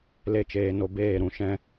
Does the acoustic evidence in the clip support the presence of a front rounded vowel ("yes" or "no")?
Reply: no